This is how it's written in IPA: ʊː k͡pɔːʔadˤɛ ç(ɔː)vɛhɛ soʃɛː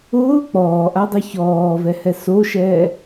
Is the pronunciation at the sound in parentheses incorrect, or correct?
correct